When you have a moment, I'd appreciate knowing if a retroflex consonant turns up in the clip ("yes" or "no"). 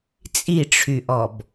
yes